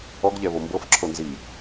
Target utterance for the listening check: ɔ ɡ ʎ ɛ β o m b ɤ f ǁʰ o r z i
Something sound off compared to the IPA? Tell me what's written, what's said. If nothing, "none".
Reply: r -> n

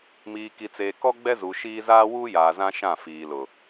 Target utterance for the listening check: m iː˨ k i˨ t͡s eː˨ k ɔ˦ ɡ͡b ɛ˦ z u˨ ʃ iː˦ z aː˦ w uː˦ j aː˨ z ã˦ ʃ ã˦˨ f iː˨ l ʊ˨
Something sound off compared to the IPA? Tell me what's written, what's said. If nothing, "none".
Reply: none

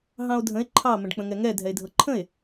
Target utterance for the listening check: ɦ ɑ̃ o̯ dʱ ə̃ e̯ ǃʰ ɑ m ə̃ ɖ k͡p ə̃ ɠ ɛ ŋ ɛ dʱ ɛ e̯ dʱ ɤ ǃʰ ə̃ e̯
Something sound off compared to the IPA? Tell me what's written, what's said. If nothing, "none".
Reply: ɠ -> ŋ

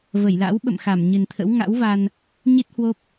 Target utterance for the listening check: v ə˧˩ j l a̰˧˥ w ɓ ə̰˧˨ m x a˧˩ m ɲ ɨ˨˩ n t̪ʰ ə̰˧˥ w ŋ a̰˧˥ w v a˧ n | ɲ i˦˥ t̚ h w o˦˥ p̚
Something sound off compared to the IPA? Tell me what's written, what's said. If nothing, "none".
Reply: none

